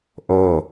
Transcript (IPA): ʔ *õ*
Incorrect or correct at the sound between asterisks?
incorrect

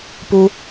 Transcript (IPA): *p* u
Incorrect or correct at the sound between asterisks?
correct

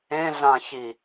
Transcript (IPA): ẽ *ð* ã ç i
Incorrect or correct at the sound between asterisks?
incorrect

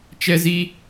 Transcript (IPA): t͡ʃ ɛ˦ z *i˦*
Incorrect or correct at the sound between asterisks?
correct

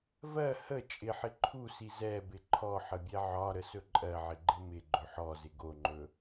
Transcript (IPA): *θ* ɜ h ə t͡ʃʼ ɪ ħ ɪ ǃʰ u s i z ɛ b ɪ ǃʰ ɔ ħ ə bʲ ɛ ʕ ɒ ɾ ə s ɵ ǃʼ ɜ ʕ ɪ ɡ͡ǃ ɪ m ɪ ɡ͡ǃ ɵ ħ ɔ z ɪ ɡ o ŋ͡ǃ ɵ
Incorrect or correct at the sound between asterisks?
incorrect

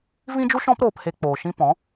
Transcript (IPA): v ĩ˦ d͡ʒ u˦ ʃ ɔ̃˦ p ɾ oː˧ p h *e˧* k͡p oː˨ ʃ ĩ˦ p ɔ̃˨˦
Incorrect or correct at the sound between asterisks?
correct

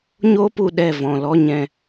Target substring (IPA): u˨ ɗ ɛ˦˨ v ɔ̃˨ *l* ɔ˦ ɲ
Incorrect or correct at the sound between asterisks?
correct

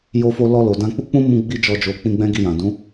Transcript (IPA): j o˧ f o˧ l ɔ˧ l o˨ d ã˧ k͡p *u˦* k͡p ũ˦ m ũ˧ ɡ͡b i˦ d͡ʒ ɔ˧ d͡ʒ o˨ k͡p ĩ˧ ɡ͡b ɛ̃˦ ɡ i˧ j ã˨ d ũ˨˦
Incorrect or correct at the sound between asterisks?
correct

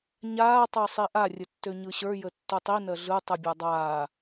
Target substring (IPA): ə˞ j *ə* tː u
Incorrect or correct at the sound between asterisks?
correct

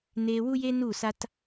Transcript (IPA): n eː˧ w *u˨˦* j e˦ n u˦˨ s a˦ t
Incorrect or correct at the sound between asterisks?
incorrect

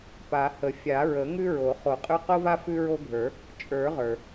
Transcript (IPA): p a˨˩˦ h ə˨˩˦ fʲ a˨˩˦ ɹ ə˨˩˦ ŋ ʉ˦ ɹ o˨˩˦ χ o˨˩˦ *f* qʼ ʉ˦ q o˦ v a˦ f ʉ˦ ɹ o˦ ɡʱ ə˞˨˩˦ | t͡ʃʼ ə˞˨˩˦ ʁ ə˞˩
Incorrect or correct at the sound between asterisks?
incorrect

